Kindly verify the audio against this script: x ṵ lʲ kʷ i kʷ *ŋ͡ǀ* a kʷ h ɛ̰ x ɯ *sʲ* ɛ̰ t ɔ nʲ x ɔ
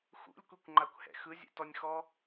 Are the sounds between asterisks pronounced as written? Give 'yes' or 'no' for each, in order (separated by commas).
no, no